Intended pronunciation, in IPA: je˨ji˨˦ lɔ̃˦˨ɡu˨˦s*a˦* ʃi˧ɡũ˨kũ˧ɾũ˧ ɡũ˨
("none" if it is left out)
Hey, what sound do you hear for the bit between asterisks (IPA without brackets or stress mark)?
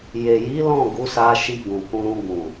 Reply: a˧